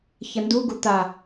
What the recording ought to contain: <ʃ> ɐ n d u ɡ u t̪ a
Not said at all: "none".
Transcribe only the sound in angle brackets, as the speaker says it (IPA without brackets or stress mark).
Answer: ç